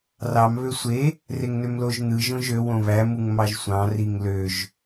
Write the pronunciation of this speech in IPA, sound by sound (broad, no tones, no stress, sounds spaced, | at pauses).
r ɑ m β ø sʷ e | r e ŋ n ø m l o ʒ n̪ ɯ ʒ õ ʒ ø w õ β æ m u ŋ m ɑ ʒ sʷ ɑ̃ r i ŋ l ø ʒ